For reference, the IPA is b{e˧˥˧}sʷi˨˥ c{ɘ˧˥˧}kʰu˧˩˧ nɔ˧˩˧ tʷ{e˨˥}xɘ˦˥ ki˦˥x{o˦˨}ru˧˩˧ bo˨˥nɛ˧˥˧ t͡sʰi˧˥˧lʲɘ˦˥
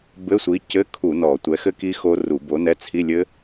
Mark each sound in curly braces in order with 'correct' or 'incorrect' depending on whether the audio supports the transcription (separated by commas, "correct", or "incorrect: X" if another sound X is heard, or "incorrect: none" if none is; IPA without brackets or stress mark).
incorrect: ɘ˧˥˧, correct, incorrect: ɛ˨˥, incorrect: o˦˥